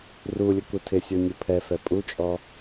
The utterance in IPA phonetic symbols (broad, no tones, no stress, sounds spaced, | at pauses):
r u lʲ ʊ k u tʰ ɪ sʲ o nʲ u pʰ ɛ f ɛ pʼ u t͡ʃʼ ɔ